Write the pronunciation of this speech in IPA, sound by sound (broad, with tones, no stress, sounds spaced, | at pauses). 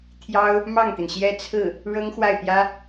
t̪ʰ j ɑ˥ ʊ̯ | m ɑ˥˩ ŋ t̪ i˩ n ɕ j ɛ˥˧ t͡sʰ ɹ̩˥˩ | ɻ ɤ˥ ŋ x w a˥˩ ɪ̯ p j ä˥